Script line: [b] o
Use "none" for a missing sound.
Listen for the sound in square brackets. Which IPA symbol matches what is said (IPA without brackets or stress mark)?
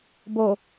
b